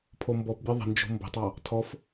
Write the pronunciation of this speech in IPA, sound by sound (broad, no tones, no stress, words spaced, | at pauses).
pʰombɔpbʲə˞ ðˤə̤nd͡ʒo̤ mbə̤tˤɑ | tʰɔf